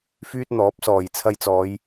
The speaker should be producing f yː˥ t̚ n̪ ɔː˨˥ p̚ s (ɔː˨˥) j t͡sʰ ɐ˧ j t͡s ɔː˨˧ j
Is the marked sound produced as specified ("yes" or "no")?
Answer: no